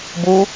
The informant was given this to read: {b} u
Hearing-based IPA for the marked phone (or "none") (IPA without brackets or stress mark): b